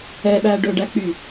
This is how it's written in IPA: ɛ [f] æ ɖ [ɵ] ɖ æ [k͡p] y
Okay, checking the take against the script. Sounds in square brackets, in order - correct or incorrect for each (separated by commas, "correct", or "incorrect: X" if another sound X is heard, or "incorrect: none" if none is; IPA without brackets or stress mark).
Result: incorrect: ɓ, correct, correct